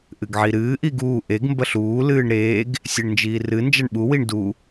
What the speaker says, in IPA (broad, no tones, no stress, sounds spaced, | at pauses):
ʔ ɨ ɡ ʕ i ɾ ɨː ʔ i ɡ uː ʔ e ɡ m b ɐ ɬ uː l ɨː ɳ ɾ eː ɡ | sʲ e ɳ n d͡ʒ iː r ɨ n d͡ʒ ɐ ɳ ɓ u w i ɳ d u